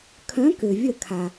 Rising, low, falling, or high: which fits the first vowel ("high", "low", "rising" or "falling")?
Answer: rising